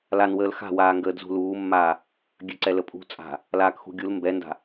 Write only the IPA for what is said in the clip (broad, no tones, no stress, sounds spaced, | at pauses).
l a n w əː l x a̤ w aː ŋ ɡ əː d z ṳ l uː mː aː | ɡʲ ø ǀ ɛ l ə pʼ ṳ t͡sʼ a̤ | l aː k x ṳ ɡʲ u l m b ɛ n d a̤